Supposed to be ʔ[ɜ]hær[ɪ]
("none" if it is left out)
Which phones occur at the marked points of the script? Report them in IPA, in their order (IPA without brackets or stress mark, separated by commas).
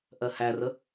ɜ, ə